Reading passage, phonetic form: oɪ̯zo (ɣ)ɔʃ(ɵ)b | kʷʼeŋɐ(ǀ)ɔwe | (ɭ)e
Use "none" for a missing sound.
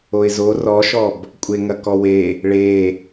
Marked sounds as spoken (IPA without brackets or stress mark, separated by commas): r, ɔ, k, ɭ